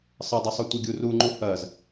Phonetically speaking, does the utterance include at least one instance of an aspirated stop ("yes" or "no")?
no